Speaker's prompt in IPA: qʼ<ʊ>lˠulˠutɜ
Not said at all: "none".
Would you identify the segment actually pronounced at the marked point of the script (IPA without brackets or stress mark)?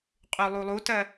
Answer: ʉ